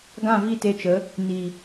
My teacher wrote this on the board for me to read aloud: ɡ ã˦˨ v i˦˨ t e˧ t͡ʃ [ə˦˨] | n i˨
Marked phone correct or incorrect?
incorrect